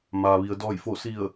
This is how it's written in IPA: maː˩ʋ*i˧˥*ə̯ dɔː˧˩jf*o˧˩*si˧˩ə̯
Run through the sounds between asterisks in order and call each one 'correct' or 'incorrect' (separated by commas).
incorrect, correct